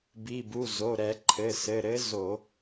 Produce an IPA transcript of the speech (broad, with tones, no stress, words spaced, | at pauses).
bi˩˧˩bu˩˧˩ zo˩˧˩ ɾɛ˧˩˧ǃʰɘ˩˧˩ sɘ˩˧˩ɾɘ˧˥ zo˧˩˧